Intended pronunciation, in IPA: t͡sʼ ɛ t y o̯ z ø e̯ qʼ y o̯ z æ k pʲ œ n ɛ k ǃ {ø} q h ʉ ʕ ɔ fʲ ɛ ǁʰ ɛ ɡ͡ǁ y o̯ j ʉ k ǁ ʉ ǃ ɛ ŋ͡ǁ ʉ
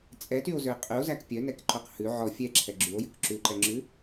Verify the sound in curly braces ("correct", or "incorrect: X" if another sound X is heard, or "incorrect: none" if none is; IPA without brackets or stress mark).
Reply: incorrect: œ